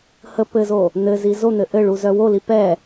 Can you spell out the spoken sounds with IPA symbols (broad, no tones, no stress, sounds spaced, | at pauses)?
h ə p ɘ z o | n̪ ɘ z i z o n̪ ɘ ʔ ɘ ɭ u z œ w o l i p ɛ